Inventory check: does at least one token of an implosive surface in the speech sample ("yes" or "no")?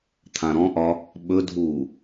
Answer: yes